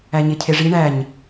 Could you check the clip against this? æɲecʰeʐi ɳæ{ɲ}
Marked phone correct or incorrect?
correct